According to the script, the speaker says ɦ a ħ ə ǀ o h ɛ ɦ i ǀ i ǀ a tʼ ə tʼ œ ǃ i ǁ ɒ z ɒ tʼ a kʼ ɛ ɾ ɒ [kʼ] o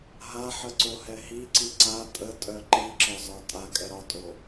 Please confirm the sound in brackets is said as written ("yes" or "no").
no